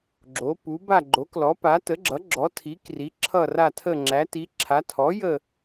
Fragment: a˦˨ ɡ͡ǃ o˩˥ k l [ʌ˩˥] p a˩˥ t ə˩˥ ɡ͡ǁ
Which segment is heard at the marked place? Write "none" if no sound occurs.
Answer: ɔ˩˥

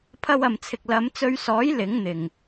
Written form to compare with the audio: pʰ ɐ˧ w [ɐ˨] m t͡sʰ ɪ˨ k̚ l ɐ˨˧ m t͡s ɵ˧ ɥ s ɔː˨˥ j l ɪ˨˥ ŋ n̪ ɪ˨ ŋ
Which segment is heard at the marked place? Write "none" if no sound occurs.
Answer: ɐ˨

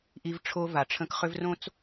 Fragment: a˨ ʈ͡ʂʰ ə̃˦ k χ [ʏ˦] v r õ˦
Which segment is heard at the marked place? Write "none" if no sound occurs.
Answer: ʏ˦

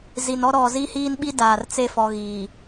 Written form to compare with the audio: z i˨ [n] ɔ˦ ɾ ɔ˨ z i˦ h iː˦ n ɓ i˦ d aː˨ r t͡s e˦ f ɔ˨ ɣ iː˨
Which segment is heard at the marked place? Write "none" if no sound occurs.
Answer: n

